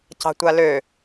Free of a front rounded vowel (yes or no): no